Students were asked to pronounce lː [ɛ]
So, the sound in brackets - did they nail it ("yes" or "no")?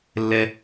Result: yes